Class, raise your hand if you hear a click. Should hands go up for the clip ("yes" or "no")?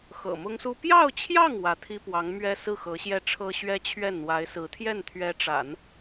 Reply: no